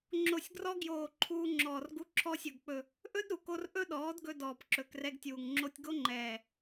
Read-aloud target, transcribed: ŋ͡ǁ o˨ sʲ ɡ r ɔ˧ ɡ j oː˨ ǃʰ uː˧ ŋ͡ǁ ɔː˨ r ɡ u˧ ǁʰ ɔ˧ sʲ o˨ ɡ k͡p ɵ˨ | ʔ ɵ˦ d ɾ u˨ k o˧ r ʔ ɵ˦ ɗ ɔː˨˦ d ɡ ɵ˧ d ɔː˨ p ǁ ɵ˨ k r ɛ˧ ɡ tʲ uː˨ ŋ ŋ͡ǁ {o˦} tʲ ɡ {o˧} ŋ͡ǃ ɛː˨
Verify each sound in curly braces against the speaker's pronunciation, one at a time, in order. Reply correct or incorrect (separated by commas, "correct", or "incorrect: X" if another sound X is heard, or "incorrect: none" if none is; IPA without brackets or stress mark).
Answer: incorrect: o˧, incorrect: o˦